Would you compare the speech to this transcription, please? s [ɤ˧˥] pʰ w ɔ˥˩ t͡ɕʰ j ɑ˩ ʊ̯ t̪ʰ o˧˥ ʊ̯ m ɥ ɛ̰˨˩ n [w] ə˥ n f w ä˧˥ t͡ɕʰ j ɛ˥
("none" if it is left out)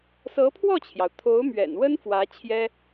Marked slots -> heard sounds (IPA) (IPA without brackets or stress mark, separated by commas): ɤ˧˥, w